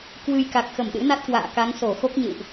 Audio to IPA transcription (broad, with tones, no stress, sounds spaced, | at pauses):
k w ɨ˧ j k a˨˩ k̚ x ə˧˩ m ɗ ɨ̰˧˥ n a˦˥ t̚ k w a̰ː˧˨ k a˨˦ ŋ s o˧˩ x o˦˥ k̚ ɲ ɨ̰˧˨ w ʔ